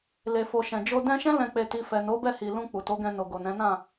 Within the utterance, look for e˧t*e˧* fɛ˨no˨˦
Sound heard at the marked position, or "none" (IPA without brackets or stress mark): i˧